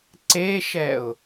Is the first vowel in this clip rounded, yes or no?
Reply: no